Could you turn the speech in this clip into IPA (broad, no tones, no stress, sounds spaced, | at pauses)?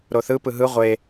ɾ o θ ɯ p ɯ ɦ ɯ ʁʷ e